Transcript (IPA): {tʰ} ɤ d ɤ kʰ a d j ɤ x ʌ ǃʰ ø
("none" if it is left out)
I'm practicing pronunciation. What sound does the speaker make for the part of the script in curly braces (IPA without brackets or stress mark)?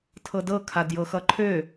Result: tʰ